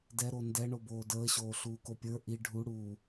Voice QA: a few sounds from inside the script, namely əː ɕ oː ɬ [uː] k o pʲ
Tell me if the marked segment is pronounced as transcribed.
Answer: yes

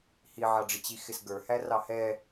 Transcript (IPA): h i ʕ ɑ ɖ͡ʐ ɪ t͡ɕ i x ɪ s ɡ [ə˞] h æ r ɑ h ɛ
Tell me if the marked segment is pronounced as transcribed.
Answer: yes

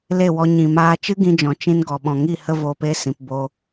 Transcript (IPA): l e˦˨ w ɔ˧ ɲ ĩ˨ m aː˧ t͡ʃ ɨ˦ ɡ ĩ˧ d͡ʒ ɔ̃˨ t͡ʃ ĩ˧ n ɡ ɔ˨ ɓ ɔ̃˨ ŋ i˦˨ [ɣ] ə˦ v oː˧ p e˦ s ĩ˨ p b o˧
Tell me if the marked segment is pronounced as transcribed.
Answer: no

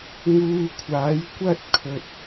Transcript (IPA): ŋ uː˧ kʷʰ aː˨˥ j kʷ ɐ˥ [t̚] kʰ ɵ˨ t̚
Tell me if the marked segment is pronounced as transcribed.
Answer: yes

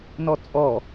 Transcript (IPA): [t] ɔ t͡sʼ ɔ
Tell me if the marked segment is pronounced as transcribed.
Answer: no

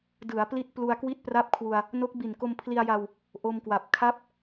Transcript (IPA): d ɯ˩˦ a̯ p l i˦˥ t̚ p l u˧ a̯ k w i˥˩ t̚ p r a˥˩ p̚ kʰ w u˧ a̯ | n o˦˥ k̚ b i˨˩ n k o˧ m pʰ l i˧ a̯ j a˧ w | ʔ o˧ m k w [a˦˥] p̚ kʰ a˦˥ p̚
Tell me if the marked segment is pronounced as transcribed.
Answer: no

